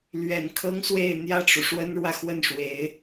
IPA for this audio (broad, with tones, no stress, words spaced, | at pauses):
lɥɛ˨˩nkʰɤ˥ŋ swe˥˧ɪ̯ n̪jä˥˩ʈ͡ʂu˩ ʂwə˥nɻwä˨xwə˥˩nʂwe˧˥ɪ̯